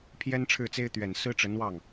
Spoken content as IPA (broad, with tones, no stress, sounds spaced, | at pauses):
pʰ j ɛ˥ n ʈ͡ʂʰ ɻ̩˥˩ t͡s e˥ ɪ̯ t̪ ɥ ɛ˨˩ n s ɹ̩˥ ʈ͡ʂ ə˧˥ n w ɑ˥˩ ŋ